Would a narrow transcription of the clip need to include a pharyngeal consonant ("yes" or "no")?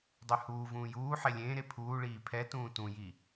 yes